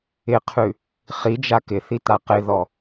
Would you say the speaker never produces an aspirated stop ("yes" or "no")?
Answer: no